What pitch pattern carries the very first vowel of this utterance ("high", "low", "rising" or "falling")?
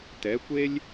rising